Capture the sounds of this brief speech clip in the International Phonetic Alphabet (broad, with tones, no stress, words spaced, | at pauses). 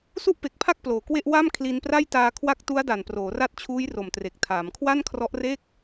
su˥˩ʔpe˨˩k̚pʰa˥˩k̚ ploː˨˩kwe˥˩ʔ wa˥˩m kʰli˧npra˥˩j taː˧ kʰwa˦˥k̚tu˦˥a̯ da˨˩nproː˩˦ra˦˥t̚t͡ɕʰuː˦˥j ro˨˩mtre˨˩k̚tʰaː˩˦m kʰwa˥˩nkʰrɔ˦˥ʔre˥˩k̚